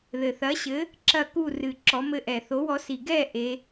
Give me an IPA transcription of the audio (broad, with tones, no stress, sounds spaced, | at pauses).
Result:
ð ɘ˨˩ θ ɐ˨˥ ɕ ɘ˨˥ | ǁ ɐ˥˨ k u˥˨ r ɨ˨˩ ǁ ɔ˨˥ m ɘ˥˨ ʔ ɛ˨˩ θ o˨˥ w ɔ˨˥ s i˨˩ ɡ ɛ˥˨ ʔ e˩˧